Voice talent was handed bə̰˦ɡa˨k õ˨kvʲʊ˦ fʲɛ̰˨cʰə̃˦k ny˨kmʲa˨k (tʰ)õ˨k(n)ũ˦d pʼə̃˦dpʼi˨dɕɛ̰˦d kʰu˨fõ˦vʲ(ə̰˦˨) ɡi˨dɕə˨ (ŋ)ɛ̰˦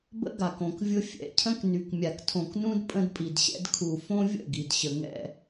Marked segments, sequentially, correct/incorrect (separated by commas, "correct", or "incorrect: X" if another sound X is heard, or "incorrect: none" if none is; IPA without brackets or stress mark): correct, correct, correct, correct